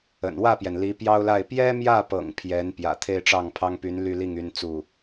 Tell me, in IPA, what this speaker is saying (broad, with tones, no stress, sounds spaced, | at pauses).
ə̰˨˩ n w ä˥˩ p j ɛ˩ n l i˧˥ p j ɑ˥ ʊ̯ l a˥˩ ɪ̯ p j ɛ˥ m j ä˥˩ p ɤ̰˨˩ ŋ pʰ j ɛ˧˥ n p j ä̰˨˩ t̪ʰ e˥˧ ɪ̯ ʈ͡ʂ ɑ˥˩ ŋ pʰ ɑ˥ ŋ p y˧˥ n l y˥˧ l i˥˩ ŋ y˥ n t͡s u˥˩